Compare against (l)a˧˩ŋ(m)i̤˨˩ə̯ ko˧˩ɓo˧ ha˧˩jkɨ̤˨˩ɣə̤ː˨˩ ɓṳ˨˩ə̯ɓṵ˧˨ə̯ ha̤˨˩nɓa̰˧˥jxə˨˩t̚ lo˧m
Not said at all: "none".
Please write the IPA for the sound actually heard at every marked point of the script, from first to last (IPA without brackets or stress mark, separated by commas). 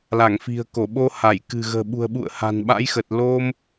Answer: l, f